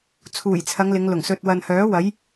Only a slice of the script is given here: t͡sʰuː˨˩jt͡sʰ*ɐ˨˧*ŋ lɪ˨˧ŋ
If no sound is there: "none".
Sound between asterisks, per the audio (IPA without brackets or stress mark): ɐ˨˧